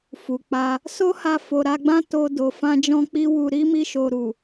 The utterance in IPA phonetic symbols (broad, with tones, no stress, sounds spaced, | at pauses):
f u˨ k͡p a˧ | s o˦ h a˧ f o˨ ɾ a˧ ɡ͡b ã˦ t o˧ d o˨ f ã˧ d͡ʒ ɔ̃˧ k͡p i˧ w u˨ ɾ i˨˦ m i˧ ʃ o˨ ɾ u˨